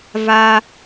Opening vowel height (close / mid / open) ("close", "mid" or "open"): open